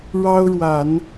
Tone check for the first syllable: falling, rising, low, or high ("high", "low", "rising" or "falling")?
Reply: high